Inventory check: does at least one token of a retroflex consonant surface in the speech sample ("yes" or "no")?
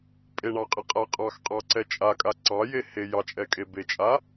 yes